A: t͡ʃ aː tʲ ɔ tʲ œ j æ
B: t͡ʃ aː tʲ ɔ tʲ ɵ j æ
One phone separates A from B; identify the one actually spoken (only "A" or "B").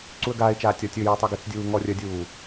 B